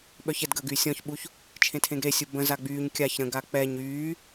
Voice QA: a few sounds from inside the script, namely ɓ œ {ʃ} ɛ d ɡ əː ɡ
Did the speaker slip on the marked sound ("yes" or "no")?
yes